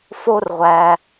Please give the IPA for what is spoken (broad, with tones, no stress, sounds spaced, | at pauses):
f o˥ r ʁʷ æ˧